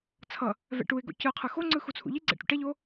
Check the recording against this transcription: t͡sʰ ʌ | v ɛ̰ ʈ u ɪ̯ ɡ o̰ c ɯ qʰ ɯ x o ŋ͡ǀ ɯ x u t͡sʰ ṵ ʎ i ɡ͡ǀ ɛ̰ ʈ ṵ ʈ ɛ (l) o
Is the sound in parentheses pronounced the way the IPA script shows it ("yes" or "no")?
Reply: no